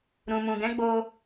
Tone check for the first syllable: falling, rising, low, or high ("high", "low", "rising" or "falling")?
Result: low